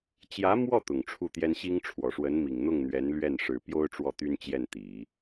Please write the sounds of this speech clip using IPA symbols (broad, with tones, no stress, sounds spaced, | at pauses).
t͡ɕ j ä˧˥ m w ɔ˥˩ t̪ ʊ˨˩ ŋ ʈ͡ʂʰ u˥˩ t̪ j ɛ˥ n ɕ i˥ ŋ ʈ͡ʂʰ w ɔ˨˩ ʂ w ə˧˥ n m i˨˩ ŋ n̪ ʊ˥˩ ŋ n̪ ɥ ɛ˧˥ n l ɥ ɛ˥˩ n ʂ ɻ̩˨˩ p j o˥ ʊ̯ ʈ͡ʂ w ɔ˥˩ t̪ y˥ n t͡ɕ j ɛ˥˩ n t̪ i˨˩˦